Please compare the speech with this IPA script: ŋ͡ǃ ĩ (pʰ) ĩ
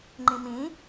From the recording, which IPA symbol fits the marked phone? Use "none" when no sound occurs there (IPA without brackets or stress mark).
m